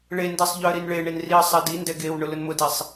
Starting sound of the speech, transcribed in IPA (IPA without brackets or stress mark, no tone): ɭ